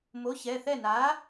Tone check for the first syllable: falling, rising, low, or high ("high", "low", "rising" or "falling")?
rising